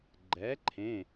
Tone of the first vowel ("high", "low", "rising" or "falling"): rising